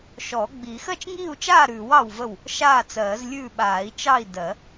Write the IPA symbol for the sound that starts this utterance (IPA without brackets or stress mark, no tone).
ʃ